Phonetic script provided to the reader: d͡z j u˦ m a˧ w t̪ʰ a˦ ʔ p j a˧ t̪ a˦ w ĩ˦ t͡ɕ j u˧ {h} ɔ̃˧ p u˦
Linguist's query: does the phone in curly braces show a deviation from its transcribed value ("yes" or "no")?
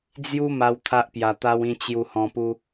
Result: no